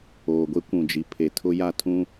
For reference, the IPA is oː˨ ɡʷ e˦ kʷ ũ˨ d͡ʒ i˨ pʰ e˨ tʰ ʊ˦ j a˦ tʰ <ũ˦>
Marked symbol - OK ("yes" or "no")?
yes